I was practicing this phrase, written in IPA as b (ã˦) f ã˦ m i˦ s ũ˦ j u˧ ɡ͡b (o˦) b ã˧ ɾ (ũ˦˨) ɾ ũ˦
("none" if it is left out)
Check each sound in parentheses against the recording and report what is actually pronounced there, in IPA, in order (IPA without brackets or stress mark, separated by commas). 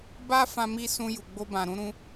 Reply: a˦, o˦, ũ˦